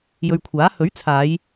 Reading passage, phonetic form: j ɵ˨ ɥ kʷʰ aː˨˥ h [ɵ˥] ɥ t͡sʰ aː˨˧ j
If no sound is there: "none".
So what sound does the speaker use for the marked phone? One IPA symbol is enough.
ɵ˨˥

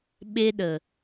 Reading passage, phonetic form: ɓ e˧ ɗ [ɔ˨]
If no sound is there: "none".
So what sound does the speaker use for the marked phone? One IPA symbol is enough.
ə˨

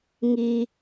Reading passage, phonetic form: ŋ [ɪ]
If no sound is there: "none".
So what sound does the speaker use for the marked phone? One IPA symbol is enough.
i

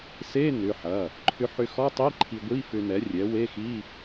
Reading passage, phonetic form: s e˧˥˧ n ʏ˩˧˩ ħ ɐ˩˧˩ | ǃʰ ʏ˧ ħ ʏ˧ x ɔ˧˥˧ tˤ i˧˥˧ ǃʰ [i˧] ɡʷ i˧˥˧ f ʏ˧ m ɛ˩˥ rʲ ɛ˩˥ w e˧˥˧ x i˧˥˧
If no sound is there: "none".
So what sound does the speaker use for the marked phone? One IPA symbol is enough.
i˧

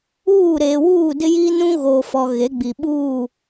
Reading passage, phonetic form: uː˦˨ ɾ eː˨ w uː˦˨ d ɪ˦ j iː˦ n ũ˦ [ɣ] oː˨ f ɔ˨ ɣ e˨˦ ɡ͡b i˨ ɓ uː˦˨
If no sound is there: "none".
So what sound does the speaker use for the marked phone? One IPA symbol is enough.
ɣ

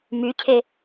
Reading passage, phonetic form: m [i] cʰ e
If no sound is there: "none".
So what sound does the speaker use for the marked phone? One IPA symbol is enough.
y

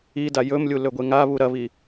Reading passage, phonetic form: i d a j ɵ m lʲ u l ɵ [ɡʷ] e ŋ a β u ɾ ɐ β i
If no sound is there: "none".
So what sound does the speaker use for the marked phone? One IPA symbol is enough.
ɡʷ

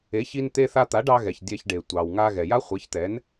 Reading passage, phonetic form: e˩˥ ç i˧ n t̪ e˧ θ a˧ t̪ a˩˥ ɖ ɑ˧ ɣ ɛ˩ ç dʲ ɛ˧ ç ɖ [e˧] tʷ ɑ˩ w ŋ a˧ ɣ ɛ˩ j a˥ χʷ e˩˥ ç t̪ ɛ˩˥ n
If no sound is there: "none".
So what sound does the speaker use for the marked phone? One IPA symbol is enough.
e˩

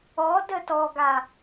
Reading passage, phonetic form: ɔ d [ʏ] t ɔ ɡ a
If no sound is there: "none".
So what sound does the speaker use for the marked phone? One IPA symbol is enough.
ə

